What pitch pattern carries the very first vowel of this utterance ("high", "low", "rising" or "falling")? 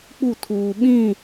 falling